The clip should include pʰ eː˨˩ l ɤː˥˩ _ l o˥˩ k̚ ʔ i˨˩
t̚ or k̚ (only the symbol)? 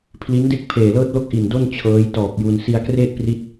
t̚